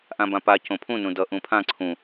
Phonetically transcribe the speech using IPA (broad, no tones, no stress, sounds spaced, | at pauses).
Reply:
ʔ ã b ã p a c õ pʰ ũ n ũ d ʌ ʔ ũ pʰ ã ǀʰ ũ